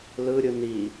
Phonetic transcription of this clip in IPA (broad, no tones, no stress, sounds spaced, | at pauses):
l ɯ ɾʲ ɯ n i